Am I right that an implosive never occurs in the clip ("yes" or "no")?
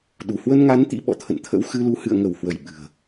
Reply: no